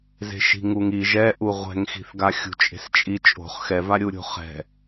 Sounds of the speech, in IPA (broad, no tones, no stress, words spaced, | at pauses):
ze̤ʃi̤ŋuŋiʒ ɛʔu ʁʷɛ̤ŋxi̤θɡaxʲṳ t͡ʃʼe̤st͡ʃʼi t͡ʃʼo̤χ xɛvaɾʲuɾʲo̤ χɛ̤